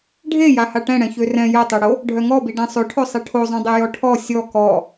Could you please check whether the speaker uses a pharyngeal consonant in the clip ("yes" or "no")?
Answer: no